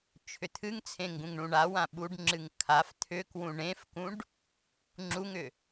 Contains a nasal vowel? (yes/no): yes